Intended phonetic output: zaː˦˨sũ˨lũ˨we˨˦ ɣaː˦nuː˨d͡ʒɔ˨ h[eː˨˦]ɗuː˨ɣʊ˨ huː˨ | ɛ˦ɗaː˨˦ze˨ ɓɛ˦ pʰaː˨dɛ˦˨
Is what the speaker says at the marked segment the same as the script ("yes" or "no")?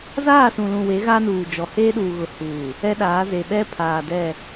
no